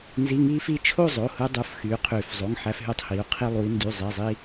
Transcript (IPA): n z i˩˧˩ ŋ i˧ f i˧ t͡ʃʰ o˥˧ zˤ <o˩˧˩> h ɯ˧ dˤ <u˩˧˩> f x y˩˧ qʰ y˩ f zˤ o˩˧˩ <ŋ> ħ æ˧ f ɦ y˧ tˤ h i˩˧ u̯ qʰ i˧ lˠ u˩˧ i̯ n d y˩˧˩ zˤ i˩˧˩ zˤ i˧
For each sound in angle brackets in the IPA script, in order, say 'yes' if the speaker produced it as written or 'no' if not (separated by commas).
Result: yes, yes, yes